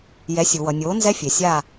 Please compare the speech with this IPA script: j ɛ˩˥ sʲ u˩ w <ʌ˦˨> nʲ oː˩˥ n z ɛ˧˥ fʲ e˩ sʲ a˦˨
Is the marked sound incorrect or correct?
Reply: incorrect